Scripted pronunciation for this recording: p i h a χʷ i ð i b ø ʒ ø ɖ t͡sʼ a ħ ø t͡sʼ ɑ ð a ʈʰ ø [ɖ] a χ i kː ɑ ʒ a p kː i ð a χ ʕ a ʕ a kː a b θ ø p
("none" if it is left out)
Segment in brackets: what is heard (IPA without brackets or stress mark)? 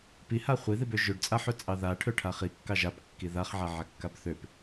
ʈʰ